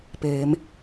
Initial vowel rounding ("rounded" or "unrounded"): unrounded